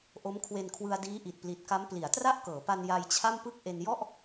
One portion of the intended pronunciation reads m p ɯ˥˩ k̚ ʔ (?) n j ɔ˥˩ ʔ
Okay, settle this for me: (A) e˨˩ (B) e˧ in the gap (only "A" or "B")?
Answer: B